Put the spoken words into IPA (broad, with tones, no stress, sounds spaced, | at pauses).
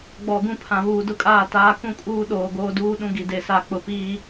ɡ͡b ɔ˨ ɡ ũ˦ pʰ ã˨ β uː˨ d ʊ˦ kʼ aː˦˨ t aː˦ k ũ˦ kʼ uː˦ ɗ oː˨ ɡ oː˦ d uː˦ ɗ ũ˦ ɡ i˨ d e˨ s a˦˨ k͡p ʊ˨ p iː˦